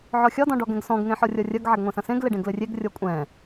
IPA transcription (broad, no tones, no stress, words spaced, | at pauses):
ʕɔxʲɒ dɔ̃ɖɔɡɛ̃ɡsɔ̃ɡ ŋẽħɔrʲɒrʲɐɡ ʕɛɡŋʷɛ̃sɐ̃sẽɡ leɖẽɡlɘrʲeɡ rʲɔkʷʼɛ̃